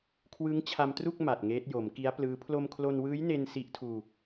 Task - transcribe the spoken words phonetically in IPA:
kʰ w ɯ˦˥ ŋ t͡ɕʰ a˧ m t r u˥˩ k̚ m a˨˩ t̚ ŋ eː˦˥ t̚ j o˩˦ m k i˦˥ a̯ p l ɯː˦˥ pʰ l o˧ m kʰ l o˧ n w ɯː˦˥ j n e˧ n s i˦˥ ʔ tʰ uː˧

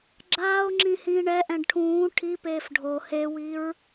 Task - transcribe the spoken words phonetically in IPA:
ɡ͡ǁ aː o̯ ŋ͡ǁ ĩ h ĩː ɳ ɛ ʔ ɛ̃ ɖ ʈʰ ũː ʈʰ i p eː f ɖʱ o h e w i ɹ

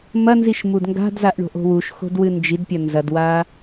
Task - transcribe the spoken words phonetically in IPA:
m ɐ n z i ʃ m u d ŋ ɡ a̤ d z a ʔ ɳ o̤ ʔ o̤ w u ʃ x o̤ d w ɨ n d͡ʒ i d pʲ ɐ n z ɐ d w a

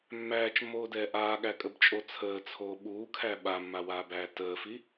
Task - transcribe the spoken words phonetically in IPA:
mː æː t͡ʃ mː oː d ɛː ʔ aː ɠ æ kʼ ə b t͡ʃʼ o t͡sʰ əː t͡sʰ oː ɓ uː kʰ æ ɓ a mː a w aː b æː t əː f i

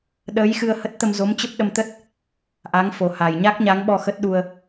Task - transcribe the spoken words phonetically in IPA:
ɗ əː˨˦ j x ɨ˧ ə̯ h ə˦˥ t̚ t̪ ə˧ m z o˨˦ m t͡ɕ ə˦˥ p̚ ɗ ə˧ m t̪ ə˦˥ t̚ | ʔ a˨˦ ŋ f o˨˩ h a˨˩ j ɲ a˦˥ k̚ ɲ a˨˦ ŋ ɓ ɔ˧ x ə˦˥ t̚ ɗ u˧ ə̯

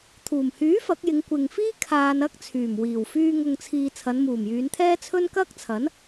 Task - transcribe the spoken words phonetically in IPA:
t̪ʰ uː˨˩ m h yː˨˥ f ɐ˨˥ k̚ j ɪ˨˧ ŋ kʷ ɪ˨ ŋ f iː˥ kʰ aː˧ n ɐ˥ k̚ t͡sʰ yː˨˩ m w iː˨˩ w f yː˧ ŋ ʊ˨ ŋ t͡sʰ iː˨ t͡sʰ ɐ˨˧ n m uː˨˩ m j yː˨˧ n t̪ʰ ɛː˥ t͡sʰ ɵ˥ n k ɐ˥ k̚ t͡sʰ ɐ˨˥ n

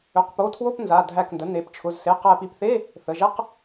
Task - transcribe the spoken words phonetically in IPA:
ø˩˧˩ q p o˩˧˩ tʰ w o˧˥˧ p n z a˩˧˩ dʱ æ˧˩ k n d ə˩˧˩ n e˧˩ p t͡ʃʰ ʊ˩˧˩ z s e˩˧˩ q æ˧˩ p i˧˩ p θ e˧˥˧ | θ ə˩˧˩ ʒ ɛ˧˥˧ q

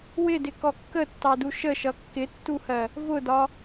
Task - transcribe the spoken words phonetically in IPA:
w ɪ d ɪ k ɔ kː ə tː ɑ d u ʃ ə ʃ ʌ kː ɪ tː u h ɜ | v ʊ d ɒ

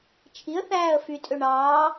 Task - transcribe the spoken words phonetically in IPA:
t͡ʃʰ i ə̯ θ æː ə̯ f y tʼ ø ɳ ɑː

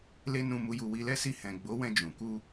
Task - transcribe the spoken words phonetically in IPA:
l e˦ n ũ˧ m u˧ j u˧ w i˧ l ɛ˦ s i˧ h ɛ̃˨ ɡ͡b o˨˦ w ɛ̃˧ d͡ʒ ũ˨ k u˧

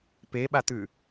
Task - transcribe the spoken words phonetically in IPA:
p e ɓ a t̪ ʉ

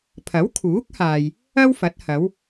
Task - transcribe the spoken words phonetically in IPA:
pʰ ɐ˨˥ w kʰ uː˨˥ k̚ h aː˨ j | ɐ˥ w f ɐ˨˥ t̚ h ɐ˨˧ w

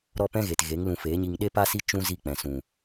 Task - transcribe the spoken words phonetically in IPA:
ɾ ɔ˦ p ɛ̃˦ ɣ e˨ t ɣ e˨˦ ŋ l ũ˧ f eː˨˦ ɲ i˧ ŋ ɗ e˦ p a˦ s i˦ t͡ʃ ũ˦ z i˦˨ k͡p ɛ̃˨ s ũ˨

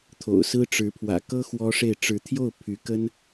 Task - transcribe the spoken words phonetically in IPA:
t̪ʰ o̰˨˩ ʊ̯ s ɹ̩˥ ʈ͡ʂ ɻ̩˧˥ pʰ w ä̰˨˩ k ɤ˥ x w ɔ˥ ʂ e˥˩ ɪ̯ ʈ͡ʂ ɻ̩˧˥ t̪ʰ j o˥˩ ʊ̯ pʰ y˧˥ k ə˥ n

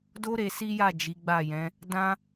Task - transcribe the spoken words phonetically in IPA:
d o˦ ɾ e˧ s i˦ j a˦˨ d͡ʒ i˨˦ ɡ͡b a˦˨ j ɛ̃˨˦ | d ã˦

